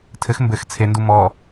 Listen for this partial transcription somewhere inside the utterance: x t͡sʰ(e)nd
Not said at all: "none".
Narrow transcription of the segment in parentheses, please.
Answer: e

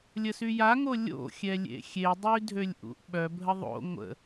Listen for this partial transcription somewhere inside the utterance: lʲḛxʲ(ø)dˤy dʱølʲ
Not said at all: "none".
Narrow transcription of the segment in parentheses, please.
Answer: e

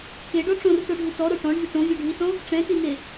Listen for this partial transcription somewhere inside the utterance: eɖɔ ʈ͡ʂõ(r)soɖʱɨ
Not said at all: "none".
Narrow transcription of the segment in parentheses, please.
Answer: r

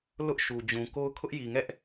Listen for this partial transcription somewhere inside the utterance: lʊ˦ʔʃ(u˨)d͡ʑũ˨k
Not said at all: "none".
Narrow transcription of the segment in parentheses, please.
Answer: u˨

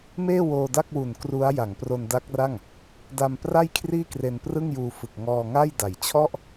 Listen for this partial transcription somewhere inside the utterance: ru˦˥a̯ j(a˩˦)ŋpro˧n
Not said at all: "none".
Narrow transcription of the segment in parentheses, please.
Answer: a˩˦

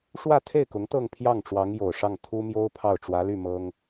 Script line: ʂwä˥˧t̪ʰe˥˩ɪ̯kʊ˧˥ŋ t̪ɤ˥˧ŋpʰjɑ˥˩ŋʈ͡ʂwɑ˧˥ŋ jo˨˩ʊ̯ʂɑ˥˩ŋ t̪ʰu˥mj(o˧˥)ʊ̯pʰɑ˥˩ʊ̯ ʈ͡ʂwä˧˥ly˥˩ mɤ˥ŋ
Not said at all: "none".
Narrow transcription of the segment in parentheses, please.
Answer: o˥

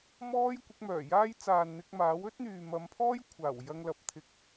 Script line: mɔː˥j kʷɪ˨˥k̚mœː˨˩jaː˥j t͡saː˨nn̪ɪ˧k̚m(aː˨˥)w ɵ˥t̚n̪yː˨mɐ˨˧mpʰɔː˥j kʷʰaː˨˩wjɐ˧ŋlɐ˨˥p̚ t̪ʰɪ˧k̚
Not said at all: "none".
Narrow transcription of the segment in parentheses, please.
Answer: aː˨˥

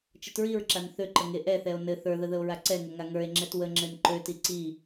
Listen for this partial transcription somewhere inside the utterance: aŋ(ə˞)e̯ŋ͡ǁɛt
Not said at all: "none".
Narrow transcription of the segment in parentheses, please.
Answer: ə˞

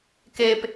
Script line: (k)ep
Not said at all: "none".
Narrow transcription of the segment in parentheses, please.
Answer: k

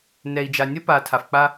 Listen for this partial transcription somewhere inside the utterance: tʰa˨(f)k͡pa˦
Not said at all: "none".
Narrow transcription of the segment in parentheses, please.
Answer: f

